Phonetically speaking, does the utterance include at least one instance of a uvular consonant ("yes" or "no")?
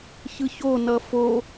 no